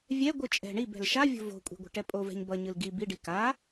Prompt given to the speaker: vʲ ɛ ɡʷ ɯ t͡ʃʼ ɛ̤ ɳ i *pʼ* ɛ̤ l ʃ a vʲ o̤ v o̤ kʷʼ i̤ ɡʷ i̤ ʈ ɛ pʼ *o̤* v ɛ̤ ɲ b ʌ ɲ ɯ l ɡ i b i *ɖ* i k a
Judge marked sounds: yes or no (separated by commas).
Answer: no, no, yes